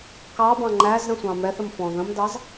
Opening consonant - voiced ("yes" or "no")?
no